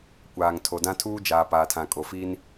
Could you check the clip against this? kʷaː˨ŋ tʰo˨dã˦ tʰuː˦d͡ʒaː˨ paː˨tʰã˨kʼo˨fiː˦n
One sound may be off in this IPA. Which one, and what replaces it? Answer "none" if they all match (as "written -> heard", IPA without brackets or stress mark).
none